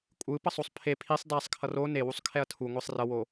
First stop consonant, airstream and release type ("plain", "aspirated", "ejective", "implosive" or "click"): ejective